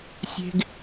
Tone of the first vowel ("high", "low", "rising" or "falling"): low